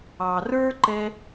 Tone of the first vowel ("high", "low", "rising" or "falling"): low